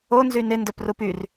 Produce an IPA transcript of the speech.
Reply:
o n z y n ɪ n d œ p r u p y r

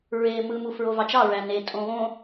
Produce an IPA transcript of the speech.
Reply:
ɹ eː m ɯ m u f ɹ o v ɑ t͡ʃ ɑ ɹ æ n e tʼ õ β õ

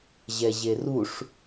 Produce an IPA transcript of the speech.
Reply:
ʑ ɛ ʑ e r u ʂ

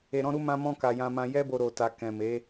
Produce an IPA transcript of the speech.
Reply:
e˧ ɾ ɔ̃˦ ɾ u˦ m ã˦ m ɔ̃˦ k a˧ j ã˧ m ã˧ j ɛ˦ b o˧ ɾ o˧ t a˧ k ɛ̃˨ m e˨˦

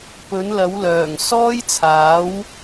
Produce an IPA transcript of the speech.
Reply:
p ɵ˨˥ n l ɐ˨˥ w l œː˨˩ ŋ s ɔː˥ j t͡sʰ aː˨˥ w

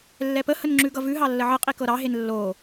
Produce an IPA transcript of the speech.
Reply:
lː ɛ p ə h ə n ŋ͡ǁ ʉ ɡ ʌ v ʉ ɦ ɑ lː ə ʕ ə qʼ i k ɤ ɾ ɑ ɦ e n lː o

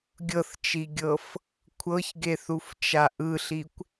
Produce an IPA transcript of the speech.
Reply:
ɡʲ ɤ θ t͡ʃ i ɡʲ ɤ f | kʷʰ ɤ ç ɡ e θ u f t͡ʃ a ʔ ɯ ɬ i kʷ

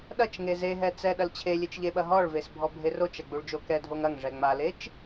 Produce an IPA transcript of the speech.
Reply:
ɗ ɐ t͡ʃ ŋ e z e ɦ ɛ t͡s ɛ ɗ ɐ l t͡ɕʰ e lʲ e t͡ʃ ʎ e ɓ ɐ ɦ ɔ ɭ v e s bʱ ɔ bʱ e r o t͡ʃ ɐ ɡ͡b u ɭ d͡ʒ o k ɛ dʱ o ŋ ɐ ŋ ʐ ɛ ŋ͡m a l e t͡ʃ

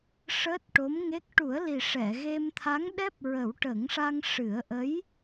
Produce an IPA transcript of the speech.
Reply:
ʂ əː˦˥ t̚ ʈ o˧˥ m ŋ e˦˥ k̚ ʈ u˨˩˦ ə̯ l i˨˩ ʂ ɛ˨˩˨ ɣ e˧ m t̪ʰ a˧˥ ŋ ɗ ɛ˦˥ p̚ ɹ ə˨˩˦ w ʈ ə˨˩˦ ŋ ʂ a˧ ŋ ʂ ɨ˨˩˦ ə̯ ʔ ə˧˥ j

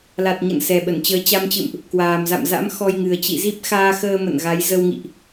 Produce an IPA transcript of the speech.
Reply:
l a˨˩ t̚ ɲ ə̰˧˨ n s ɛ˨˩ ɓ ə˧˩ n t͡ɕ əː˨˦ t͡ɕ a˧ m t͡ɕ ɨ̰˧˨ m ʔ | k w aː˨˩ m z a̰˧˨ m z a̰˧˥ m x ɔ˧ j ŋ ɨ˨˩ ə̯ t͡ɕ ḭ˧˨ z i˦˥ p̚ x aː˧ x əː˧ m ə̰˧˨ n ɣ a˨˦ j z ə˧ w ŋ ḭ˧˨ ʔ

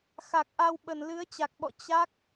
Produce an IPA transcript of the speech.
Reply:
x a˨˩ k̚ ʔ a˧ w ɓ ə˧˩ n l ɨ˨˦ ə̯ t͡ɕ a˨˩ k̚ ɓ ɔ̰˧˨ t͡ɕ a˦˥ k̚

